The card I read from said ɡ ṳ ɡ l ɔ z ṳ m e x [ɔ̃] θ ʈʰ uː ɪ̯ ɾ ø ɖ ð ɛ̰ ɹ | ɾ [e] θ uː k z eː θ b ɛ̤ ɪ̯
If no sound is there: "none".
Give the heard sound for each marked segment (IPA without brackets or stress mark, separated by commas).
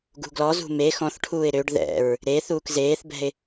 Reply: ɔ̃, e